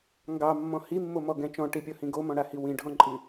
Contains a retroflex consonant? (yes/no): yes